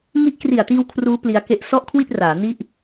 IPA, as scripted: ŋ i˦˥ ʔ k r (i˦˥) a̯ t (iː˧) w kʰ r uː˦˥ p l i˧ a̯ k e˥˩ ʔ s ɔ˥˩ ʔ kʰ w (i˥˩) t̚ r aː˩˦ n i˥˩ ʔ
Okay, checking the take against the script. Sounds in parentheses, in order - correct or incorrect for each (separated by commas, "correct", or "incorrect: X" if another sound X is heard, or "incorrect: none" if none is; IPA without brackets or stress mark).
incorrect: i˨˩, correct, correct